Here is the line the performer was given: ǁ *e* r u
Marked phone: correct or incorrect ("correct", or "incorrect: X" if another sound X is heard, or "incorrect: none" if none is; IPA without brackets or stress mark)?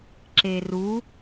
correct